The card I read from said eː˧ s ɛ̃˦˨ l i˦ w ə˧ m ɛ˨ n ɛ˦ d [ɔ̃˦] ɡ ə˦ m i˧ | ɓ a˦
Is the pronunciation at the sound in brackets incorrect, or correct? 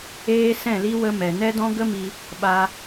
correct